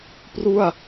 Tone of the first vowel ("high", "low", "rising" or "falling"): falling